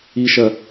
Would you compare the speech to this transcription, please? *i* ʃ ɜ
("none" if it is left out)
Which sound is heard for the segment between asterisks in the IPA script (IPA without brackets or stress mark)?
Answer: i